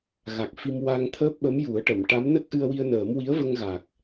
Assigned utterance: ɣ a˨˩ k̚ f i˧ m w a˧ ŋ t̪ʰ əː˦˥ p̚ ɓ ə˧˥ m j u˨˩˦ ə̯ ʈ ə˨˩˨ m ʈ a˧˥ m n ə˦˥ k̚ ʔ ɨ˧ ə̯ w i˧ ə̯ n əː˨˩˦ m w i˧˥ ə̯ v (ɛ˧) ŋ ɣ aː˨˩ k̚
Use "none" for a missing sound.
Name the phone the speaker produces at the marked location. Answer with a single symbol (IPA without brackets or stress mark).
ə˧